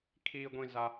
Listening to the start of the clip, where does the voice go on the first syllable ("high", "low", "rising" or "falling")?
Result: low